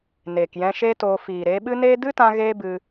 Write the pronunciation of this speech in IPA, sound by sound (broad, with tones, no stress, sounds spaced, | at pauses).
n eː˨ k j ɛ̃˧ ʃ e˦ t oː˧ f iː˨ ɾ eː˧ ɓ ɨ˦ n eː˦ d ɨ˦ t ã˧ ɣ eː˦ b ɨ˧